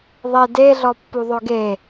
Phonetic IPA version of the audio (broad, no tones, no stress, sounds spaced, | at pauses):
ðˤ e d e ɮ ɔ pː u ðˤ ø ɡ e